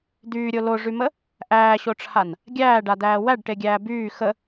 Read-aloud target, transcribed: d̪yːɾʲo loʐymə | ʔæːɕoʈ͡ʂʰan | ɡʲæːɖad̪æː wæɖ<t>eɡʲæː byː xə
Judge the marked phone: incorrect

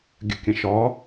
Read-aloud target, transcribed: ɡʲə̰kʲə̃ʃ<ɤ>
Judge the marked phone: incorrect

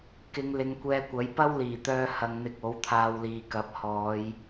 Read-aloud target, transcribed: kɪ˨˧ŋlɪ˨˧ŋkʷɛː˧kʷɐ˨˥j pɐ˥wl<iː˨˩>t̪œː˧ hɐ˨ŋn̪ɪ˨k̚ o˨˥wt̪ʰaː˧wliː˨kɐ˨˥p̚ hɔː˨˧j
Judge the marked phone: correct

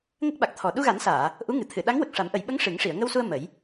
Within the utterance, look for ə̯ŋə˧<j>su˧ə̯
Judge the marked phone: incorrect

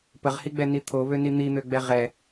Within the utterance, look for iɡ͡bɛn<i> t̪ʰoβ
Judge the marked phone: correct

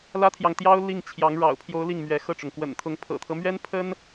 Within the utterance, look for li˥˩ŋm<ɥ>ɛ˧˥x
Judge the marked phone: correct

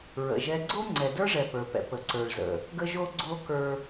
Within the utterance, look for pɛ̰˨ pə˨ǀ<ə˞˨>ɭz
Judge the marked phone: correct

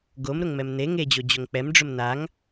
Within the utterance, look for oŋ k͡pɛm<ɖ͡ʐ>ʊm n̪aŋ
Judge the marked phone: correct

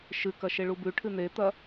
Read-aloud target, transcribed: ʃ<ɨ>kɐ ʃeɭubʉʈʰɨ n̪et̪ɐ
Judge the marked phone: correct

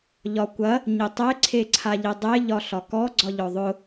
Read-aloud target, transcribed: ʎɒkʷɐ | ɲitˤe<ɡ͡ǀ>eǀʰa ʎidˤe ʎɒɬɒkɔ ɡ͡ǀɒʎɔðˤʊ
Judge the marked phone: incorrect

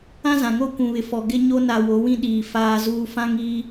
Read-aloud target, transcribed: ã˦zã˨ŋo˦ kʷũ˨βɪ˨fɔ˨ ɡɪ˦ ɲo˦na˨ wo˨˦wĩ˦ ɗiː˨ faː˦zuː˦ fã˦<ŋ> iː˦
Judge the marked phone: correct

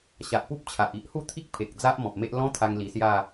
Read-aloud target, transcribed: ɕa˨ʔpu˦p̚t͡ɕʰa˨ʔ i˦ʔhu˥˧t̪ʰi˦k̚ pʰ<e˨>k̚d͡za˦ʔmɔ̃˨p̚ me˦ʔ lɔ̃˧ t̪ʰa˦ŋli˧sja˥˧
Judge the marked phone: correct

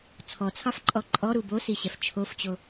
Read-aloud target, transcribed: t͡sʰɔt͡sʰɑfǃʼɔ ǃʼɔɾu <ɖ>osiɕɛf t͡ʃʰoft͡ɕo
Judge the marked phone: incorrect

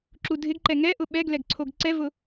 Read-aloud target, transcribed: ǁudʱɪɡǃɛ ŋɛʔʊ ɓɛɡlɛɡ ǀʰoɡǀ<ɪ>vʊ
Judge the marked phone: incorrect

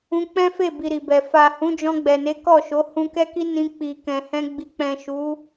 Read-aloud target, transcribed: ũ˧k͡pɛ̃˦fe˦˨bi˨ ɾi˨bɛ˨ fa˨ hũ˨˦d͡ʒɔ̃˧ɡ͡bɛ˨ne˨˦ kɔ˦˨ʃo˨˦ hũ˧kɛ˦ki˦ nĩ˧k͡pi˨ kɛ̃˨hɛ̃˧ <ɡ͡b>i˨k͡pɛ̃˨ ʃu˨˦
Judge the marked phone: correct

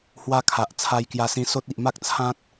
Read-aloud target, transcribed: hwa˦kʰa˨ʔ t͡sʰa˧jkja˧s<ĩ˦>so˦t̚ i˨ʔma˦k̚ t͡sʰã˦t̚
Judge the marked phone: incorrect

